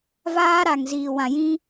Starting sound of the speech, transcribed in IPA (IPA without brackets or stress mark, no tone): v